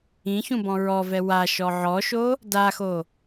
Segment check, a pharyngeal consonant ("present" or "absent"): present